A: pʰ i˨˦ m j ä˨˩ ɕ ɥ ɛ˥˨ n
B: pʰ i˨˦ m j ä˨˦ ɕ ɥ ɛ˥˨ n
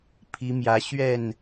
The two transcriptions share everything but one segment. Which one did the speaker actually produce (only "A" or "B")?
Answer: B